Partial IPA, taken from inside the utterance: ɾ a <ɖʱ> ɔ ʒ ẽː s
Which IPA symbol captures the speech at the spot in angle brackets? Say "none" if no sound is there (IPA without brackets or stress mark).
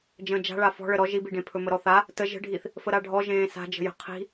ɖʱ